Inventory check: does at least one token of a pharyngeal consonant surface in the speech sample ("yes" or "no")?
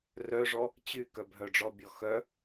no